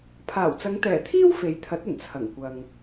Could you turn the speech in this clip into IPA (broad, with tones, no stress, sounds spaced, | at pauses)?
pʰ aː˨˩ w t͡s ɐ˨˧ ŋ t̪ ɛː˨˩ t̪ʰ iː˥ w f e˨˥ j t̪ʰ ɐ˨˥ t̚ ɐ˨˩ n t͡sʰ ɐ˨˩ ŋ kʷ ɐ˨ ŋ